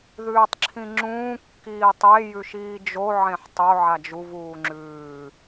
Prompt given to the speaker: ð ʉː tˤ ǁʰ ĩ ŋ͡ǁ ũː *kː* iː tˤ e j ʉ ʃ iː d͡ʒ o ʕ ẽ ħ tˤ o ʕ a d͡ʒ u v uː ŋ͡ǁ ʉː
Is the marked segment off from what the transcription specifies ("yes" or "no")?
no